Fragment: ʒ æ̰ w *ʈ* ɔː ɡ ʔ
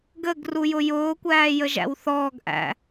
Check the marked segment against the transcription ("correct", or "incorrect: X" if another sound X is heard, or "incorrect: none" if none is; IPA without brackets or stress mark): incorrect: θ